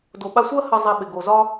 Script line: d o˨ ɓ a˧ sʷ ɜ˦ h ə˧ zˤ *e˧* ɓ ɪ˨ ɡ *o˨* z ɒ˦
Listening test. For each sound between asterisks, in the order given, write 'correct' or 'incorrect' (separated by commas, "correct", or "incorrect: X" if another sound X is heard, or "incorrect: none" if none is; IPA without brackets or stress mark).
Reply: correct, correct